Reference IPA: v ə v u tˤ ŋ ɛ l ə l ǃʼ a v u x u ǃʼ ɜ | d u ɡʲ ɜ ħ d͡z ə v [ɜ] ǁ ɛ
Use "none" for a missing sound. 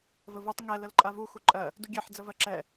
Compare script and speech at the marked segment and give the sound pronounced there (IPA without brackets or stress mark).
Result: ɜ